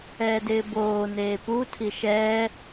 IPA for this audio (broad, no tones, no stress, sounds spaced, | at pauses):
ɛː d ɪː b oː n eː p u tʰ i ʃ ɛː